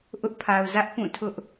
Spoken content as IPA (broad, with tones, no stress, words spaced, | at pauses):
ʔʊ˦ʔpʰa˨ʊ̯zä˦ʔ pũ˦˨tʰʊ˦ʔ